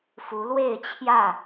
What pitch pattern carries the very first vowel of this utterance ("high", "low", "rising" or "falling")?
rising